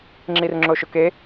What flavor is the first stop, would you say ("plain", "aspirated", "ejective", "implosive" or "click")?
click